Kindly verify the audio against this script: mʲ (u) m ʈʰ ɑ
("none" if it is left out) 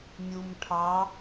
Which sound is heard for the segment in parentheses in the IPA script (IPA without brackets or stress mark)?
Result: u